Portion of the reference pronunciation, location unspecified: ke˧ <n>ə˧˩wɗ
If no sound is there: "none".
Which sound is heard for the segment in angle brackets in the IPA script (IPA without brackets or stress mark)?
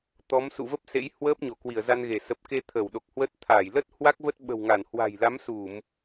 t̪ʰ